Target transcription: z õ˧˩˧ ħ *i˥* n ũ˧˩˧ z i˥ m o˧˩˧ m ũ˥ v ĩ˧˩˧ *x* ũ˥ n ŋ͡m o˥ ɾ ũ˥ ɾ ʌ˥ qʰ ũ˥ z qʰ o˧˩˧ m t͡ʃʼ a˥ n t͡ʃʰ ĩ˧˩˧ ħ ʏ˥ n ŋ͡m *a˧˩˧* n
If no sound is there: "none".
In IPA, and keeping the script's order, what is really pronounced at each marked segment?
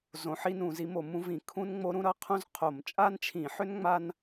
i˥, kʰ, a˥

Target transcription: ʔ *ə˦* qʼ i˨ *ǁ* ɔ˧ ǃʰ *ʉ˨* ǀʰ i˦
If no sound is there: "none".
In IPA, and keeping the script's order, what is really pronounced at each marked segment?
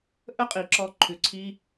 ə˦, ǁ, ʉ˨

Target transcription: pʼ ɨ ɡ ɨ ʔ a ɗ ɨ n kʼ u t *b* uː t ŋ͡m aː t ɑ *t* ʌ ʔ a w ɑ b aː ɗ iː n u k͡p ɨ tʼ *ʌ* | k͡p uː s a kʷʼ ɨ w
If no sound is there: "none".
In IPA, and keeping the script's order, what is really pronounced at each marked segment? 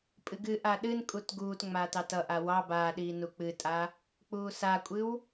ɡ, t, a

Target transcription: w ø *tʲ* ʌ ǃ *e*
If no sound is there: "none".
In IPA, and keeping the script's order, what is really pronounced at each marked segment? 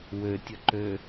tʲ, ø

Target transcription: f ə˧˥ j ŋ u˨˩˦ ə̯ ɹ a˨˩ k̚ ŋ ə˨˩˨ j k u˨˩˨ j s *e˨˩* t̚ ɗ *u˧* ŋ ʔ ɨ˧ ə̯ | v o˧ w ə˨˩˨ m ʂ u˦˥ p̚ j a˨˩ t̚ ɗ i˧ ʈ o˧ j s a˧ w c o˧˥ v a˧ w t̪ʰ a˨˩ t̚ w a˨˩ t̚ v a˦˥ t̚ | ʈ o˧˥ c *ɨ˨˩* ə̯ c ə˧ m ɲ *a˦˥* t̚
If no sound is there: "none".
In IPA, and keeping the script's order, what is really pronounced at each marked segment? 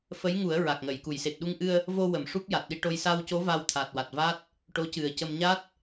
e˨˩, u˧, ɨ˨˩, a˦˥

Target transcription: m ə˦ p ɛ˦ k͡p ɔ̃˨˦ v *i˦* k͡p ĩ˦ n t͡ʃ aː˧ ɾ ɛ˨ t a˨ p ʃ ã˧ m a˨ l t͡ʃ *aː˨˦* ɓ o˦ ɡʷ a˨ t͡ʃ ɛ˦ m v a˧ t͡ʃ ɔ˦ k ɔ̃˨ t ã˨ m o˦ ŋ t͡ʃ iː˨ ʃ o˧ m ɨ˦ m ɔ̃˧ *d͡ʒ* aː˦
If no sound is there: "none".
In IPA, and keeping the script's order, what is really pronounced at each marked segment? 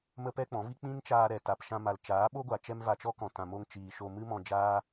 i˦, aː˨˦, d͡ʒ

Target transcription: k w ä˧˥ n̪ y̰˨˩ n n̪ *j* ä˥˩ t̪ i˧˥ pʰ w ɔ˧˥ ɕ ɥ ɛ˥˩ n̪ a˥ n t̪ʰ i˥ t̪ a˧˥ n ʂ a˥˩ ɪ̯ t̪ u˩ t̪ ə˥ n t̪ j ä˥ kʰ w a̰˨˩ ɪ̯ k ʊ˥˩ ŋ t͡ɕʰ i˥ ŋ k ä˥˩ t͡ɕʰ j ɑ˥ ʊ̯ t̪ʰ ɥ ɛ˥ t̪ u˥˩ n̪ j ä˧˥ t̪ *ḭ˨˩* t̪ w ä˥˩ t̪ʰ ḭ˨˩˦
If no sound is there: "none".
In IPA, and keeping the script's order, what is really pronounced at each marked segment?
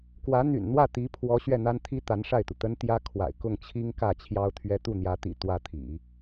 w, ḭ˨˩

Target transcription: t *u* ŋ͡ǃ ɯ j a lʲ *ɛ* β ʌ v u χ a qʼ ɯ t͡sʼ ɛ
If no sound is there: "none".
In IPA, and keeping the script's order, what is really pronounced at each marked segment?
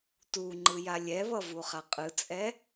u, ɛ

